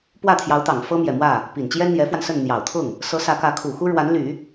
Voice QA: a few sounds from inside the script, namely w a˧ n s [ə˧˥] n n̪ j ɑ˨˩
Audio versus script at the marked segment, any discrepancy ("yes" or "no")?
yes